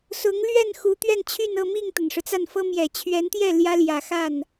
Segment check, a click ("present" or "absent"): absent